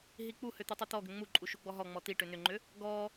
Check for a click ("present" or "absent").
present